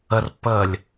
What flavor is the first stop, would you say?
plain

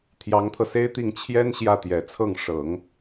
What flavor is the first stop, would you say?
aspirated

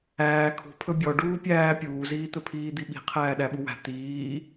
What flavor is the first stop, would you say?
aspirated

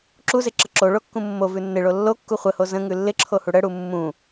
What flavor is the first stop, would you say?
click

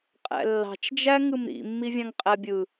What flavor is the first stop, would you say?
ejective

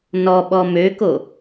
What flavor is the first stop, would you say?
implosive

